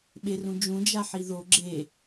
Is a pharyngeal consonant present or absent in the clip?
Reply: present